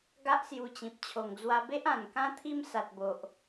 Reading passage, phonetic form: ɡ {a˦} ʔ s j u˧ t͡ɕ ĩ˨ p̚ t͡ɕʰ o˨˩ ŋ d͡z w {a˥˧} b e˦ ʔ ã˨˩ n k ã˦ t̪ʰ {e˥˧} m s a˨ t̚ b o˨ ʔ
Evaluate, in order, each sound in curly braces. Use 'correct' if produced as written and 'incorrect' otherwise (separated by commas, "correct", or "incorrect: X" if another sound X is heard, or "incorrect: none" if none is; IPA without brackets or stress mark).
correct, incorrect: a˧, incorrect: i˥˧